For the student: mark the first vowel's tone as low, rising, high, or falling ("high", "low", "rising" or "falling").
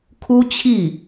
high